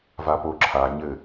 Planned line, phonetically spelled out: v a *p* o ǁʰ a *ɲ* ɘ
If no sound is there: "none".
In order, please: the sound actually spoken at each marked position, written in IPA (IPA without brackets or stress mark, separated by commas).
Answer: p, ɲ